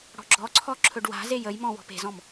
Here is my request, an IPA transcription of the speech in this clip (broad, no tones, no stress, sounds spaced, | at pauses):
ɽ ɔ̤ ɡ͡ǁ ɔ ǀʰ ɔ ǁʰ ɵ ɖ w a̤ z e j ə j m ɔ̃ w ɔ̤ p e̤ z ɔ̃ m